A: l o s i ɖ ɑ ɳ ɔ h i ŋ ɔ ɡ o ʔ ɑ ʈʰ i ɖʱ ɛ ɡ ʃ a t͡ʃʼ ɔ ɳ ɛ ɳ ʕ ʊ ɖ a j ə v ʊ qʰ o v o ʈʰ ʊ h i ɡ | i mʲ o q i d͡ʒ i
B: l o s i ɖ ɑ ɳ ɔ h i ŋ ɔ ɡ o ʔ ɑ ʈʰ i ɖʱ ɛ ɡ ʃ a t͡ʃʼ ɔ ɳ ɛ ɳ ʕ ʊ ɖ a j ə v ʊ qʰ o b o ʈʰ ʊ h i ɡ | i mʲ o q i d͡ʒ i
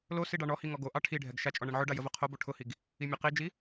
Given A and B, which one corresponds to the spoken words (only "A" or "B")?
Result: B